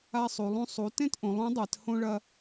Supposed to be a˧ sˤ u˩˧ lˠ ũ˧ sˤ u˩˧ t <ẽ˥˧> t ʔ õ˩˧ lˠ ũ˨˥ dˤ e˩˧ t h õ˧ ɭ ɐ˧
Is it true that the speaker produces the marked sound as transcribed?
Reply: yes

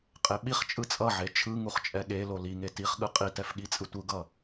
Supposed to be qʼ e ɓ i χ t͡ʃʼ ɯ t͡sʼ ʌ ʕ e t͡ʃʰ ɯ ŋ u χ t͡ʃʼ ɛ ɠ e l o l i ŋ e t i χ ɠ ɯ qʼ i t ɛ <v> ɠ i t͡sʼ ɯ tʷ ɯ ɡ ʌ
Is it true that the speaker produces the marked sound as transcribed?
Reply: no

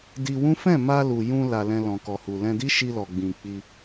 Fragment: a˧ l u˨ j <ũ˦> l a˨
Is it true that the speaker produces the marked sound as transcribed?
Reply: no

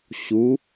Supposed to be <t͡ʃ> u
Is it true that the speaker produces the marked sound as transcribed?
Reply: no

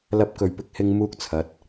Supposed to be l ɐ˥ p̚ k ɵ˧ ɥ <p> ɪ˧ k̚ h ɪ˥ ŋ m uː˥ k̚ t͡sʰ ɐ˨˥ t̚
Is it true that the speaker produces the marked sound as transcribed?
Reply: yes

